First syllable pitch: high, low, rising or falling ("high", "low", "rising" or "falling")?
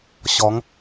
rising